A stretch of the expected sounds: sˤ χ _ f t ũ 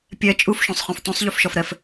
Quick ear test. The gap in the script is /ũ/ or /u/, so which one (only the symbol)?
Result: ũ